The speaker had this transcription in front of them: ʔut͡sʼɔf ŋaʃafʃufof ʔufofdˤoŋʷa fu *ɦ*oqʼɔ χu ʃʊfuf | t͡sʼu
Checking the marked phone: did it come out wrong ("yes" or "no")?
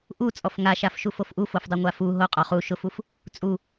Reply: no